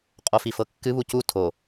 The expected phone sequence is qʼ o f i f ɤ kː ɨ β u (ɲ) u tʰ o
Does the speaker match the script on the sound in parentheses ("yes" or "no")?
no